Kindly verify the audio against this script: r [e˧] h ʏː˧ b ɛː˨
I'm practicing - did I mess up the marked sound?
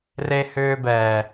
no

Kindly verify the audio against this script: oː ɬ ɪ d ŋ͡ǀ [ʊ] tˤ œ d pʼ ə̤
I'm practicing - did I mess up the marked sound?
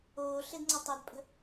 yes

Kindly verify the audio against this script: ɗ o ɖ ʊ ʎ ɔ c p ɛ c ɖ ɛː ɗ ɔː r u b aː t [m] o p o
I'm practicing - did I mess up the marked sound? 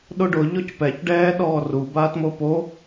no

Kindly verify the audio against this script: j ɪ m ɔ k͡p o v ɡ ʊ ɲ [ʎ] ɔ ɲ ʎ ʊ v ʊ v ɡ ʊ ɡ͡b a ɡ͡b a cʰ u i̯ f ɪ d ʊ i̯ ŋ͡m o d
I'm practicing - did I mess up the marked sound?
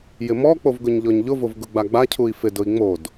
no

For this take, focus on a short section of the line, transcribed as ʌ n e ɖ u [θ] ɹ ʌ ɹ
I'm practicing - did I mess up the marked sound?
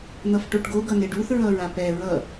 no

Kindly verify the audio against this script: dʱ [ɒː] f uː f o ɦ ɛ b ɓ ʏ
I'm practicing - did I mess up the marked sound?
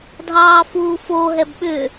yes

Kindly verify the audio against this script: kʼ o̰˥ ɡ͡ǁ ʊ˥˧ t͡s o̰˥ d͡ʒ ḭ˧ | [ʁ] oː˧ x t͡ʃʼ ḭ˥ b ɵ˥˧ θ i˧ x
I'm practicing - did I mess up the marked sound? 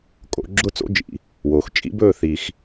yes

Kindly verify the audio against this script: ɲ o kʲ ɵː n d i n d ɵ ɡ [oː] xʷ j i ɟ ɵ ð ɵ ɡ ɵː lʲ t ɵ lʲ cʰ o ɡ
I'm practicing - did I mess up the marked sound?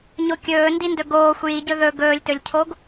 no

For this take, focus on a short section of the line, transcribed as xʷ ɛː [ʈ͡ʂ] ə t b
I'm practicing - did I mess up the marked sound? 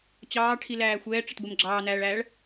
no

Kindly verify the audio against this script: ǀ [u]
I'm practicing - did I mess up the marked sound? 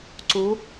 no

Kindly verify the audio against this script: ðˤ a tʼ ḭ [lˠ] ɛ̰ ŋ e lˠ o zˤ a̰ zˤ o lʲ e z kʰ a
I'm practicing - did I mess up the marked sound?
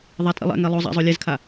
no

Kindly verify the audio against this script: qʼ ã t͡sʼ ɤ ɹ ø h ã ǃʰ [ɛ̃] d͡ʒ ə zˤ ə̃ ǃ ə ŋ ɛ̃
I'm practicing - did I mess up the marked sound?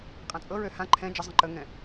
no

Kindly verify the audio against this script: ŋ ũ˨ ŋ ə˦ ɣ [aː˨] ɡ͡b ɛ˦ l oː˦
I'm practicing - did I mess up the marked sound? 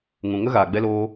no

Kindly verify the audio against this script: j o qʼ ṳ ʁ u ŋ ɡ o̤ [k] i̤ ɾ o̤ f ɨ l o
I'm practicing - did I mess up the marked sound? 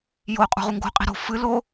yes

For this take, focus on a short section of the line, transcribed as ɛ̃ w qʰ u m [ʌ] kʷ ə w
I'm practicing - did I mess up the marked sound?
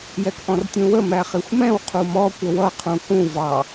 yes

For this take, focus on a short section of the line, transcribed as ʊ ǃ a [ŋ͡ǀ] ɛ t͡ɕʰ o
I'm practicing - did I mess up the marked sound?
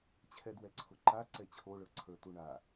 yes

